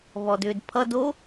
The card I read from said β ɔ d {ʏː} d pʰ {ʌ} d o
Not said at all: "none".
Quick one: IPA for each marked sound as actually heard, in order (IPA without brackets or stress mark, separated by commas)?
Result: ʏː, ʌ